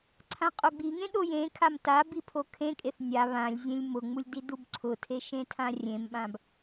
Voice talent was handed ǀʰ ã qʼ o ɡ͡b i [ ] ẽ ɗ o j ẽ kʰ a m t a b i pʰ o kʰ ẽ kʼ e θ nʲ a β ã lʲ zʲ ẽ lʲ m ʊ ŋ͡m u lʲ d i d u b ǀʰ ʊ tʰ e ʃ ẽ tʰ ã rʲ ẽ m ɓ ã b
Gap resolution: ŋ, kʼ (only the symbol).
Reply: ŋ